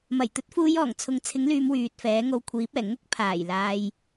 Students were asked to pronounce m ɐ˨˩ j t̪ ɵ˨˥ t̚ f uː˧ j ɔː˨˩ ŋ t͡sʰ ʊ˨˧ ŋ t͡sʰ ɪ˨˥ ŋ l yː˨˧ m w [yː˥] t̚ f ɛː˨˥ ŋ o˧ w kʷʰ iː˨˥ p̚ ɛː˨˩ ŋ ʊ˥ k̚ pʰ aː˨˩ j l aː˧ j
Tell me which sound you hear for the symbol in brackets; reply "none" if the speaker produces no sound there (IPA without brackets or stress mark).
yː˨